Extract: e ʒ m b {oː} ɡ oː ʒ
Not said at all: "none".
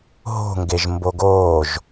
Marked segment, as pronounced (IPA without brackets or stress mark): o